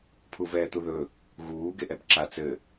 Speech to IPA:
pʰ u v ɛː t̪ u ð ɵ | ɣ uː ɡ e ʔ ɛ b ǁ a t͡s ɘ

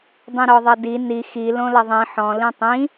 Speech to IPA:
dˤ ĩ ɾ ɔ ðˤ ɐ d i n i x i l õ l ɐ ðˤ ĩ ħ ɔ̃ l ĩ tˤ ĩ

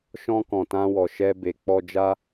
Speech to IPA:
ʃ ɔ̃˧ k ɔ̃˨ t ã˧ w ɔ˨ ʃ ɛ˧ b e˨ k͡p ɔ˧ d͡ʒ a˦

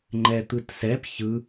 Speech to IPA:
ŋ͡ǃ ɛ t̪ ɯ t s ɛ p ç ɯ

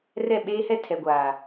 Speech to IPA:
r ɛ˦˨ ɓ eː˦ h ɛ˦ tʰ ɛ˨ ɡʷ aː˨

